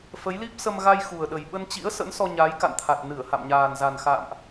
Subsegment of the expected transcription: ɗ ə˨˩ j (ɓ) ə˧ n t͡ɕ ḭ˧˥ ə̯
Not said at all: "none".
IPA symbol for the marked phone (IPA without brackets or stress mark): ɓ